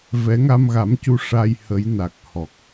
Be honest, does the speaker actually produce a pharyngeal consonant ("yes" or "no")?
no